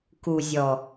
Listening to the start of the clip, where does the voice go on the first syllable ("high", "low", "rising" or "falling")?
low